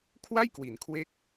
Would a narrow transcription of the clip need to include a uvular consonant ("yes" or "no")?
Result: no